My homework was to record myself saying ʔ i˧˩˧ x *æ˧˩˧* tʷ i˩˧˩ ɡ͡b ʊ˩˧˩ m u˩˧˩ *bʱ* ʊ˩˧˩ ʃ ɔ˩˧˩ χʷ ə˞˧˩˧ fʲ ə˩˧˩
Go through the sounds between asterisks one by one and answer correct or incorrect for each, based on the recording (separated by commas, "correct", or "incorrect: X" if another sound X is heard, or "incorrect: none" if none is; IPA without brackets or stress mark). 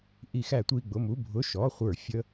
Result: correct, correct